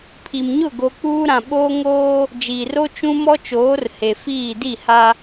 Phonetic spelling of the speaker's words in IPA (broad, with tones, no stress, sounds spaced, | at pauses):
pʰ i˨ m ɲ ʊ˦˨ ɡ o˨ k͡p uː˦ ɾ ã˨ ɓ oː˦ ŋ oː˦ | d͡ʒ iː˨ r o˦ t͡ʃ ũ˦ m ɔ˦ t͡ʃ oː˨˦ r h e˨ f iː˦˨ d i˦˨ h a˦